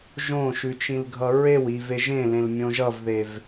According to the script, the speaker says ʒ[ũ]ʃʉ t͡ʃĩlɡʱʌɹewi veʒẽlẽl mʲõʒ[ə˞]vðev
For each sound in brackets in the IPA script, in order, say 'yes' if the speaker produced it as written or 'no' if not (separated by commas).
no, no